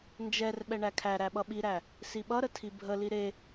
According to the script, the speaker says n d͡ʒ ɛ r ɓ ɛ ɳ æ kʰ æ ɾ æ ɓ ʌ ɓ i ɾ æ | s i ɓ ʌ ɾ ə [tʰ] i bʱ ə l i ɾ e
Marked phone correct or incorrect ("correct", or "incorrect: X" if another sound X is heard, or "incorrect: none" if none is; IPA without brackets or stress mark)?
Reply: correct